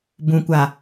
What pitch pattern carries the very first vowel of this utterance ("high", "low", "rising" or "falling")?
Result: low